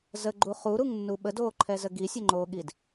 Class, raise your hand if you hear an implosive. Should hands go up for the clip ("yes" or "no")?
yes